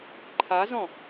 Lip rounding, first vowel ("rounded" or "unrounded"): unrounded